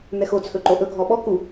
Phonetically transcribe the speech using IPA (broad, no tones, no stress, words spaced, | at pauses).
n̪ɛxo t͡sʰɵǃoʔɵ ɡʱɔɓɔ ku